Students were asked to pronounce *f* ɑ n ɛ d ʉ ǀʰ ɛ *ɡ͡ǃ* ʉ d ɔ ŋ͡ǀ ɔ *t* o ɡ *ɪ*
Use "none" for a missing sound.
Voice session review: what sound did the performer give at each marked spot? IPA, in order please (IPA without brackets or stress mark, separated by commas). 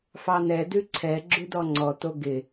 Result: f, ɡ͡ǁ, t, ɪ